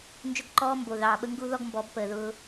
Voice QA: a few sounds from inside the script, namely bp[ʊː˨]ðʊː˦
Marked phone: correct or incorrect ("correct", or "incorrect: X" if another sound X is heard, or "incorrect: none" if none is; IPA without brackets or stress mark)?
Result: incorrect: əː˨